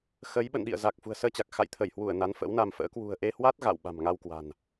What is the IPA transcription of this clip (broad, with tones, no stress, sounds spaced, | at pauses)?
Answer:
x ə˨˦ j ɓ ə̰˧˨ n ɗ ḭ˧˨ ə̯ z a˨˩ k̚ f ṳ˨˩ ə̯ s əː˧ t͡ɕ a˨˩ k̚ x a̰˧˨ j t̪ʰ ə˧˩ j h w u˧˩ ə̯ n a˨˦ n f ə̰˧˥ w n a˧ m f ə̰ː˧˥ k w ṳ˨˩ ə̯ ʔ e˧ h w a˦˥ t̚ ɣ a̰˧˨ w ɓ a̤˨˩ m ŋ a˧ w k w a̤˨˩ n